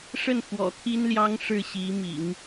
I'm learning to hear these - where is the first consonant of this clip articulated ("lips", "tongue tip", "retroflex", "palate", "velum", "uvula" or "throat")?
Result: retroflex